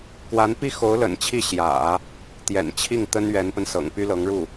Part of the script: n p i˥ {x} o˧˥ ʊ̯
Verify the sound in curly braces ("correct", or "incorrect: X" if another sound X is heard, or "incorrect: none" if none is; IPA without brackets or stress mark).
correct